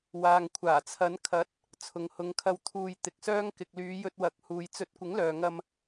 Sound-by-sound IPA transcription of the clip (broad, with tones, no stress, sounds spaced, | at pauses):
w aː˨ ŋ kʷʰ aː˨˩ t͡sʰ ɐ˨˧ n kʰ ɐ˨˥ t̚ | t͡sʰ ʊ˨ ŋ h ʊ˨˧ ŋ kʰ ɐ˧ w t̪ʰ uː˧ j t̪ ɪ˧ k̚ s œː˥ ŋ k ɪ˨ k̚ l yː˨˧ j ɵ˧ t̚ w ɐ˨˥ k̚ h uː˨ j t͡s ɵ˨˥ t̚ kʷ ɪ˨˥ ŋ l œː˨ ŋ ɐ˧ m